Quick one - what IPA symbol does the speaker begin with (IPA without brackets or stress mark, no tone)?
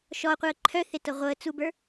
ʃ